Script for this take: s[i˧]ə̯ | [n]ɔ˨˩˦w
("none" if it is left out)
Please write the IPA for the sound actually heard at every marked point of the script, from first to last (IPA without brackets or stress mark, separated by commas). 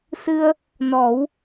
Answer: ɨ˧, n